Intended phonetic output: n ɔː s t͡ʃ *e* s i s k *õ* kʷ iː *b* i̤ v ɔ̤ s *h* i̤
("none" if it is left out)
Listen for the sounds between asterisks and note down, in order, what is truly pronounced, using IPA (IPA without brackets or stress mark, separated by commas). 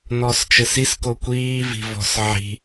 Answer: ɘ, o, v, ʕ